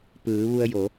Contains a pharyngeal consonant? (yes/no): no